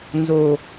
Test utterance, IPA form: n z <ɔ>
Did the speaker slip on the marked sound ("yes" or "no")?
yes